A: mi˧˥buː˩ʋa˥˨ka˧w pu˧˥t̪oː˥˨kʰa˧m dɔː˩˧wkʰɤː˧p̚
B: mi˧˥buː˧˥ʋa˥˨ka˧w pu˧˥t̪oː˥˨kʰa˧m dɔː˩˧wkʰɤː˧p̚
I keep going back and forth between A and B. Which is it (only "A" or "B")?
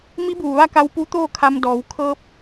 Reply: A